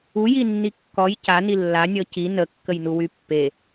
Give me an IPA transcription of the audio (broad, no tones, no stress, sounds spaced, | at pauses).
u j i nː i kː ɔ j c a n i lː a nʲ ɔ c i n ə kː ə j n u w y pː e